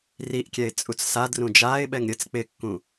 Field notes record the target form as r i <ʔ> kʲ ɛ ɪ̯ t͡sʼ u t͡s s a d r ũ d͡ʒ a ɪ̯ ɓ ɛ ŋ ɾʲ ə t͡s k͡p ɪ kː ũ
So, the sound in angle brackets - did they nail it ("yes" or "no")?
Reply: yes